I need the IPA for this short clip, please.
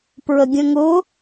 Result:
p ɹ ə ɡʲ ə̃ ŋ ʊ

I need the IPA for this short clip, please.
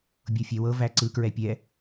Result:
bʲ ɤ fʲ ɛ w ɤ v æ ǀ ɯ k ɹ ɛ pʲ ɛ

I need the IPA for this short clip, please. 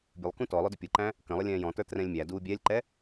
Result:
bʲ ə lˠ k ũ t ɔ lˠ ʊ d ʊ pʲ ʊ ǃ æ̃ | k ə̃ lˠ ə lʲ ɛ̃ː j ɔ̃ t ə˞ t r ɛ̃ lʲ mʲ æ d uː bʲ ɛ lʲ ǃ ɛ

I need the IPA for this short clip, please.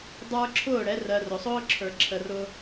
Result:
dˤ ə˞˦ ǁʰ ʊː˦˨ ɽ ɛ˨˦ r ɜ˧ r ʊ˨ sˤ ʊː˦ ǁʰ ə˞˨ ǁʰ ə˧ r ʊː˦

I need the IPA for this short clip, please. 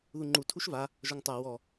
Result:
ð u ŋ͡ǃ u tʰ u ʃ v a | ʒ ɔ ŋ tˤ a w ɔ

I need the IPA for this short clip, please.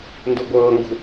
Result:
n d u ɡʷ ɤː ŋ ɡ ṳ

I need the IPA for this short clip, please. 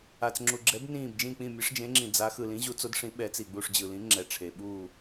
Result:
a˨ t͡s ŋ͡ǁ u˨ ɡ͡ǁ ɛ˨˥ b n ĩː˦˨ b d͡ʒ ĩ˦˨ k͡p ĩ˦˨ mʲ ɯ˨˥ ʂ d͡ʒ ẽ˨˥ ŋ͡ǁ ĩ˨ d͡z a˨˥ x ɯ˨ l ĩ˨˥ ʑ u˨˥ t͡s o˨˥ d ʂ ĩ˨˥ ɓ ɛ˨˥ t͡s i˨ ɡ͡b u˦˨ ʂ d͡ʑ ɯ˨ l ĩ˨˥ ŋ͡ǁ ɛ˨ ʈ͡ʂʰ e˨ ɓ uː˦˨

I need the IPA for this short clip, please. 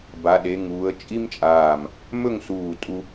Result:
b a˩˧ ɗ e˩˧ ŋ uː˩˧ ə̯ t͡ʃʼ i˥ m t͡ʃʼ aː˧˩ m | m ɵ˥˧ ŋ s uː˧˩ tʼ u˧

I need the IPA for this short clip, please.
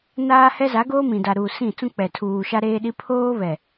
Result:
n aː˦ h ɛ˦ z a˨˦ ɡ oː˦ m ĩ˨ d a˨ ɾ uː˨ s ĩ˦˨ t͡s ũ˦ k͡p ɛ˨ tʰ uː˨ ʃ a˦ ɾ eː˦ ɗ i˦ pʰ oː˦ β ɛ˨

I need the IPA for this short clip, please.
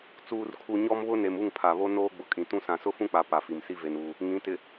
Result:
t͡s uː˨ r kʰ u˨ ɲ ɔ˦ m β ʊ˦ n e˨ m u˦˨ ŋ pʰ a˨ β o˦ n oː˦ ɡ͡b ʊ˨ kʼ ĩ˨ t ũ˦ s ã˨ s ʊ˦ f ũ˦ k͡p a˨ p a˨ f i˨ m s i˦ v e˦ n uː˦ | ŋ ĩ˨˦ t ɪ˨

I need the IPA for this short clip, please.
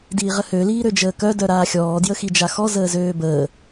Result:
d iː ʁ ə h ø l iː ɾ ø d͡ʒ əː k œ d œ ɾ aː xʲ ɔː d j ə x i d͡ʒ a x ɔ z əː z øː b əː

